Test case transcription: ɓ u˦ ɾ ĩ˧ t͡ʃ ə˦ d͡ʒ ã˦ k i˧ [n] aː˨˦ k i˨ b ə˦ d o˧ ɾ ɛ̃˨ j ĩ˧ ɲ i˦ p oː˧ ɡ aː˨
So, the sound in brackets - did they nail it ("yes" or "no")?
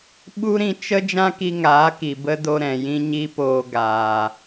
no